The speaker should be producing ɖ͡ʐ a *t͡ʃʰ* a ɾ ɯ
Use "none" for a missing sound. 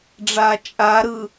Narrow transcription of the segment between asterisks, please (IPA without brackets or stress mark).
t͡ʃʼ